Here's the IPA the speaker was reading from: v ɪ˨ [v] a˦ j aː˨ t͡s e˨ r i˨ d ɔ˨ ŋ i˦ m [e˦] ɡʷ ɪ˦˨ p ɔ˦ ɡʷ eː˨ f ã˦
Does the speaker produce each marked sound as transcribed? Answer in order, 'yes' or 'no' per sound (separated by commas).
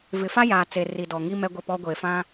no, no